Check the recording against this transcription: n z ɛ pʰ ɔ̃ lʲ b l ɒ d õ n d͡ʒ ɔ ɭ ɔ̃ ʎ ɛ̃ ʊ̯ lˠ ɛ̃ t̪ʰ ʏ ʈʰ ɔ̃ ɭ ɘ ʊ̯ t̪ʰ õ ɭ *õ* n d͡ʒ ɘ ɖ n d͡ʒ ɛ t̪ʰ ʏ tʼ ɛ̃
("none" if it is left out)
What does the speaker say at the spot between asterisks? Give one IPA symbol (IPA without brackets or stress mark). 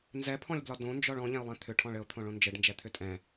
õ